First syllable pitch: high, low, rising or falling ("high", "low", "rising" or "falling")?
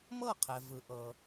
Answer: falling